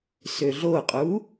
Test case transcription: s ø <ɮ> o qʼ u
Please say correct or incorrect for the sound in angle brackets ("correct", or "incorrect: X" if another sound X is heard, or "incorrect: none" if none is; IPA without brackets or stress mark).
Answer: correct